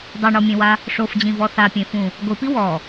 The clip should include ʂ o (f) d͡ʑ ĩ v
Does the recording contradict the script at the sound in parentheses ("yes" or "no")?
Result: no